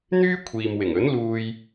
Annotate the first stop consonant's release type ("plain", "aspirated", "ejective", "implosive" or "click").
aspirated